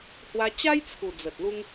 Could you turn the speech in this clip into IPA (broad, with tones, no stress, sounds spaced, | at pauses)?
h w a˧ t͡ɕ a˦ j t͡sʰ u˨˩ d͡z ə˨ t̚ l u˦ ŋ